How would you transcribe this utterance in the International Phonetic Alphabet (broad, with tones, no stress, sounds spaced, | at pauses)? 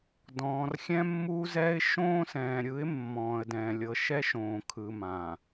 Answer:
d ɔ̃ː˨ r xʲ ɛ̃˦ mː uː˦ z ɛː˦ ɪ̯ ʃ õː˦ s ɛ̃ː˨ ɾʲ ɯ˨˦ ɪ̯ mː ɔ̃ː˨ ə̯ d ɛ̃ː˨ lʲ ɤ˨ ʃ ɛ˦ ʃ õː˨ kʰ ɯ˨ m ã˨